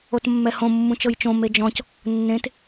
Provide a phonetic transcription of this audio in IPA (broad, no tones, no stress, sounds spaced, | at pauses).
o t mː ɛ h õ mː ũ t͡ʃ ɤ j t͡ʃ õ m e d͡ʒ ɔ̃ c | nː ẽ t